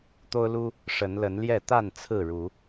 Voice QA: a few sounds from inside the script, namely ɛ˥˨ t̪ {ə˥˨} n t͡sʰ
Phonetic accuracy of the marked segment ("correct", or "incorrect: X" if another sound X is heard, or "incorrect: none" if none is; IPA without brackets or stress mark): incorrect: a˥˨